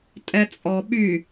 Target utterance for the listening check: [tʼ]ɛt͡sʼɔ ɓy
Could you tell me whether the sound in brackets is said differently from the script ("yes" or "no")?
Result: no